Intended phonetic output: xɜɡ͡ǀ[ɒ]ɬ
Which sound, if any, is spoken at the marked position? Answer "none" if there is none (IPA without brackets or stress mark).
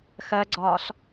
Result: ɒː